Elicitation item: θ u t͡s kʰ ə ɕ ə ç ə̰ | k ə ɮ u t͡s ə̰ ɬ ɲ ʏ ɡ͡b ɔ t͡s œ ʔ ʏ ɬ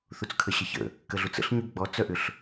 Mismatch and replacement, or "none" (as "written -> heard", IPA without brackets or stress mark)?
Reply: none